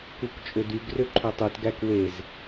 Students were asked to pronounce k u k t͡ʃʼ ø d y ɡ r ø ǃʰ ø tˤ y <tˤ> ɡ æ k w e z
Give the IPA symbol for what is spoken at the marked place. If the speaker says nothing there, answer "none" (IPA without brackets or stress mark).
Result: t